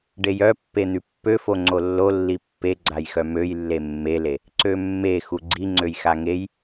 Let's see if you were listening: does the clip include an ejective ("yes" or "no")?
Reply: no